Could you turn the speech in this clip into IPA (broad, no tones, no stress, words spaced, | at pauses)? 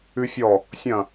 ʉfʲɔ | sʲɐ̃